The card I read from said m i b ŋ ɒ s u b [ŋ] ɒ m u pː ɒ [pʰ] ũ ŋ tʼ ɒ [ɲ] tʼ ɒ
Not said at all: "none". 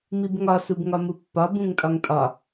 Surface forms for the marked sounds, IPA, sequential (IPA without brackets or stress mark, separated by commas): ŋ, b, ŋ